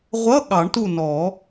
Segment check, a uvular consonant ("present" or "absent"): present